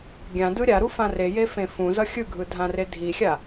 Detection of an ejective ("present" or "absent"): absent